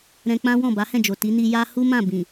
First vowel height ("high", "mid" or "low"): mid